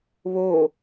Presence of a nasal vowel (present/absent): absent